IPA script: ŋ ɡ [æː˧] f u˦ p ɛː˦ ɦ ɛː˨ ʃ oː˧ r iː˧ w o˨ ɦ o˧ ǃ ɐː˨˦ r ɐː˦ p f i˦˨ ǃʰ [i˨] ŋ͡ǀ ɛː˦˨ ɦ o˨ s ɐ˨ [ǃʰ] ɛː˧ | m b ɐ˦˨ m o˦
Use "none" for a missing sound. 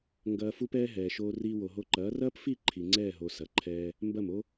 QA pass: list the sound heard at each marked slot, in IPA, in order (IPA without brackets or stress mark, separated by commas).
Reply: ɐː˧, i˨, ǃʰ